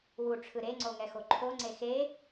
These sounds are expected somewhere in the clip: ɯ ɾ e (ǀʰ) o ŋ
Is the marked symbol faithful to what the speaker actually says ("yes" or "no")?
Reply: no